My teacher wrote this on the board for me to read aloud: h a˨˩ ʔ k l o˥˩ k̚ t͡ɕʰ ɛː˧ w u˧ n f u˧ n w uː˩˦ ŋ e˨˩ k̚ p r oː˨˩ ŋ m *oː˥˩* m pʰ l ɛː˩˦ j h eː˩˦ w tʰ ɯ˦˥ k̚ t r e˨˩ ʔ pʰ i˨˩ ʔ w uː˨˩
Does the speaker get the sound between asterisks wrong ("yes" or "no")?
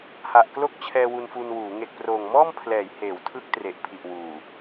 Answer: yes